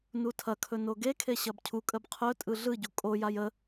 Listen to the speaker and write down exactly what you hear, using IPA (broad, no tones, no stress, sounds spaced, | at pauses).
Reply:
n u tʰ ɐ kʰ ɵ n o ɡ e kʰ e ɕ ɐ b cʰ u kʼ ə b qʰ ɵ tʼ ɯ ɮ ɯ ɟ u kʼ o j a j ə